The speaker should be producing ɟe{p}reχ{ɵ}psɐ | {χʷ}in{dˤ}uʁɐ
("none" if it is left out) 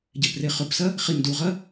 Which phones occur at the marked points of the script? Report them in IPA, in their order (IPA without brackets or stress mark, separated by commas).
p, ɵ, χ, d